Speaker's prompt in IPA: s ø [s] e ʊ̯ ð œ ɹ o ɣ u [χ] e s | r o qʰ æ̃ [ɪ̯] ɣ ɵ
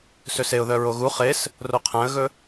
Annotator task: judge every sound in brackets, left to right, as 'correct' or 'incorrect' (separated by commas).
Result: correct, correct, incorrect